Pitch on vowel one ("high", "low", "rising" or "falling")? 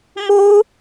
high